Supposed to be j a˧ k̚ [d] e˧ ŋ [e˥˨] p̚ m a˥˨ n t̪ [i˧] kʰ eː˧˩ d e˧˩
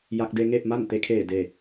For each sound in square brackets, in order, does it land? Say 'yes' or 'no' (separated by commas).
yes, yes, no